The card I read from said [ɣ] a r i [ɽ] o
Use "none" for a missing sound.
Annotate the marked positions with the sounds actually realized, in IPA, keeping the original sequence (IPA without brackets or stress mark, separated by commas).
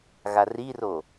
ɣ, r